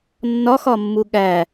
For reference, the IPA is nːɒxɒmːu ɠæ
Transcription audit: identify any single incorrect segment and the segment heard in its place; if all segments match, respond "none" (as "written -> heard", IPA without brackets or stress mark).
none